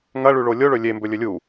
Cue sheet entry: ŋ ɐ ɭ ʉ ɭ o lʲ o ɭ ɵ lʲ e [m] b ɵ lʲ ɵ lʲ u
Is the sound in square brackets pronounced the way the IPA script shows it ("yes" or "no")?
yes